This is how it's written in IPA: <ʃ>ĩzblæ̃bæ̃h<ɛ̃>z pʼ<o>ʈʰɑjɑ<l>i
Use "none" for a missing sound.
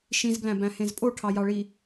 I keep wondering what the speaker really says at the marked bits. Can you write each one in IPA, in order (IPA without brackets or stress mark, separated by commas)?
ʃ, ẽ, o, ɭ